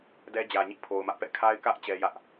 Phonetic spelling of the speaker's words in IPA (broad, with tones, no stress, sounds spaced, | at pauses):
d ɛ˦ d͡ʑ ä˨ ɲ ḭ˦˨ pʰ o˨ ʊ̯ m ä˦ ʔ p ɛ̰˦˨ kʰ a˦ ɪ̯ k ä˦ ʔ t͡ɕ ɛ˦ j ä˦ ʔ